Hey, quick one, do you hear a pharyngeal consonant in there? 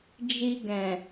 no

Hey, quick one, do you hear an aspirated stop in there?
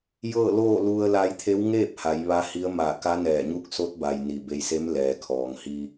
yes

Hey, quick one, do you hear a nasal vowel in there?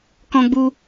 yes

